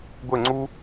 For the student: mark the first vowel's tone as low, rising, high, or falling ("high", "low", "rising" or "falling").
falling